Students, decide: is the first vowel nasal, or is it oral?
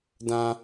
nasal